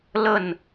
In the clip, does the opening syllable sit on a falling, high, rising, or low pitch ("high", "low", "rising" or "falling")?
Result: falling